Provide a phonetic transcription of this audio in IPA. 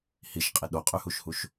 hiʃqʼi ɗoqʼyhuʃhuʃ

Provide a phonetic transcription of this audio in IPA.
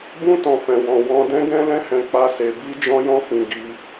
bũ˦ tɔ̃˧fɛ̃˧wɔ̃˧ wɔ̃˧dɛ̃˦ ɡɛ̃˦lɛ̃˦hɛ̃˧ k͡pa˦se˧ bi˦d͡ʒɔ̃˦jɔ̃˦fĩ˧ ɡi˧

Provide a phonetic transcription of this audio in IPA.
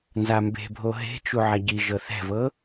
nzambe̤bʱo ɦe̤t͡ʃu ʕaɟiʒɤ θɛ̤vɤ

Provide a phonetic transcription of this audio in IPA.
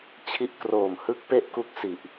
t͡ɕʰi˦˥ʔkroː˨˩m hɯ˦˥k̚ pe˥˩ʔku˦˥k̚ si˨˩ʔ

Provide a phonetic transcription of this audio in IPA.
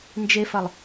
nd͡ʒefɐlˠ

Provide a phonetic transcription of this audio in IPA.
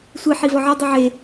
sʷi ħivɒʕɒ dˤiʕe

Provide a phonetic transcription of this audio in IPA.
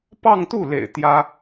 pɑ˥˧ŋt̪u˥˩lḛ˨˩ɪ̯ t̪jä˥

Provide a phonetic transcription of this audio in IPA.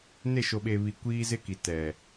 ne˦˨ʃo˨ɓe˨βi˨ kʷiː˦zɪ˦ki˨ tɛ˨

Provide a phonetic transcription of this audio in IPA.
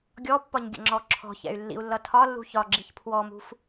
ɡʲɔpːɒɲ ɡʲə̰ŋ͡ǁɔǁʰɔ̤çɛ̰y̯ lːḭu̯lːʌtʰɒlːṳ çɒɡ͡ǁiç pʰwɔmṳf

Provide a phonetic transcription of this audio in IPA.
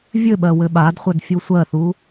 vʲɘɓɜ wɘɓadχʷɛdfʲu sʷɜθu

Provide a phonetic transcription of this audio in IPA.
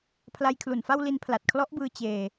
pʰla˦˥jkʰlu˨˩nfa˥˩w li˧npʰla˨˩t̚kʰlɔ˦˥ʔbɯː˧ t͡ɕeː˧

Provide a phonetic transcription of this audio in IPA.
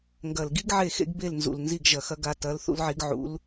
ŋɡɐ˨˩lɡi˥ɡ ʕe˥˨xḛ˥ɡ be˥˨lnzṵ˨˩l nzi˥˨ɡʒɐ˨˩xɐ˥ɡa˧˥ tɐ˧˥l θṵ˥lʕi˧˥ɡʕṵ˧˥l

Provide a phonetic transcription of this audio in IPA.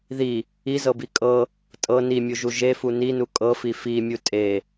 ði | izɤbi kʼɤ | tʼɤ nimʲuʒu ʒefu ninu kʼɤfi fimʲu tʼe

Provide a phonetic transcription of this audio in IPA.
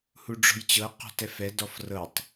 huɖ͡ʐɔ̤jt͡ɕɤ qɔ̤tɛfɛ dɔfrɤtˤ

